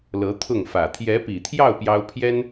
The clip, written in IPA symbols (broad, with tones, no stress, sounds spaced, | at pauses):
l ɤ˧˥ t̪ʰ ʊ˥˩ ŋ f ä˨˩ t̪ʰ j ɛ˧˥ p i˨˩ t̪ʰ j ɑ˥˩ ʊ̯ p j ɑ˥ ʊ̯ pʰ j ɛ˥ n